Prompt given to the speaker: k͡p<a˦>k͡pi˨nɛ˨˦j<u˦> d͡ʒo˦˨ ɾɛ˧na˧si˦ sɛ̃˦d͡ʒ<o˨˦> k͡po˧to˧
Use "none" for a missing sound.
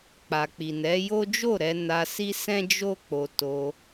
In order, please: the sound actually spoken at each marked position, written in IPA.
a˨, o˦, o˦

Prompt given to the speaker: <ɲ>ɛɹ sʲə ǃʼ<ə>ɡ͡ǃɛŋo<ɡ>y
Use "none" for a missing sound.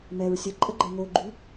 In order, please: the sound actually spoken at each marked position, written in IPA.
m, ə, ɡ͡ǃ

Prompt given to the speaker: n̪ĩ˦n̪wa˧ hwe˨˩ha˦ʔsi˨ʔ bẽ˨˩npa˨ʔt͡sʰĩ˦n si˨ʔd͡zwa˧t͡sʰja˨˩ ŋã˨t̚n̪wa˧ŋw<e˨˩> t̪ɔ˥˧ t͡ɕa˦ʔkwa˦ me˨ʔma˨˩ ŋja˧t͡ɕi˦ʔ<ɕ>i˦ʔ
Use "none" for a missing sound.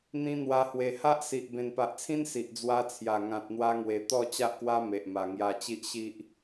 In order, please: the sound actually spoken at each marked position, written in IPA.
e˨˩, ɕ

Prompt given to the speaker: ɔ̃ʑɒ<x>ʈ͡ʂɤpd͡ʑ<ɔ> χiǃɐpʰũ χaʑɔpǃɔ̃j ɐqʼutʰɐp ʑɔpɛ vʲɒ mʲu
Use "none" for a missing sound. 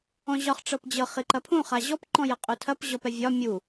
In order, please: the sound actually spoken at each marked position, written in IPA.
χ, ɤ

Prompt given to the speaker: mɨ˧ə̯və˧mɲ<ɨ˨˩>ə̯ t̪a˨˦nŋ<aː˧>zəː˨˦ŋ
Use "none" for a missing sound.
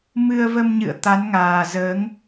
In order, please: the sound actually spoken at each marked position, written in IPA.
ɨ̰˧˨, aː˨˩

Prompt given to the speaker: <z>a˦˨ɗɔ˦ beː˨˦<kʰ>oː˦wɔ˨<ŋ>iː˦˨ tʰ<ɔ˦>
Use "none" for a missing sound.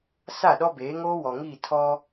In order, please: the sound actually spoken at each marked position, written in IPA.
s, ŋ, ŋ, ɔ˦

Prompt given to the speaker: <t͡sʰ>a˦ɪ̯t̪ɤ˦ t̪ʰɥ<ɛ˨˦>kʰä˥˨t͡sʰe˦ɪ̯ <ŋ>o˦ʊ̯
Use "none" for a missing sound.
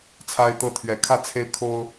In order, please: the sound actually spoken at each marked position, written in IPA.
t͡sʰ, ɛ˨˦, kʰ

